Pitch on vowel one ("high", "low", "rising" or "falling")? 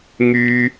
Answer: high